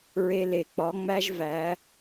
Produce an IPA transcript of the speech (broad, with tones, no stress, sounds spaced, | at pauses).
ɹ e˧ l e˨ k͡p ɒ˨˦ ŋ͡m æ˦ ʒ v æ˨˦